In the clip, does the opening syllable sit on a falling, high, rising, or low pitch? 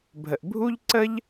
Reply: low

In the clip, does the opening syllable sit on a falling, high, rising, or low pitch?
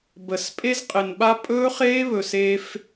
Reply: low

